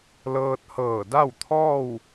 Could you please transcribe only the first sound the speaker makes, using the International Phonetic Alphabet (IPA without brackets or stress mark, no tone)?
l